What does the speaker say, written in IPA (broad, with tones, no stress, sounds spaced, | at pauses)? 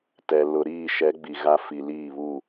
t ɛ˨ l ʊ˨ ɾ iː˦˨ ʃ ɛ˨˦ ɡ͡b i˨ ɣ a˦ f i˨ l iː˦˨ β u˦˨